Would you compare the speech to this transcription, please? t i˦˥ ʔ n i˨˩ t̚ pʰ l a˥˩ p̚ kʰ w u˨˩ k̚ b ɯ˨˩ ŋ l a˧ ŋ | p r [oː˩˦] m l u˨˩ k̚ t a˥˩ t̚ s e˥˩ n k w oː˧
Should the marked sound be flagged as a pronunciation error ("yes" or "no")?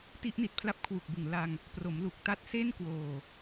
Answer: yes